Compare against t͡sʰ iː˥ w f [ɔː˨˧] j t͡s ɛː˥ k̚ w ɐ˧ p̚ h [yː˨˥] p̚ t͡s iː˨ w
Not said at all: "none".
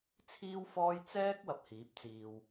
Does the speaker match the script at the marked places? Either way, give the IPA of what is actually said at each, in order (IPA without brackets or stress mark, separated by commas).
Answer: ɔː˥, iː˨˥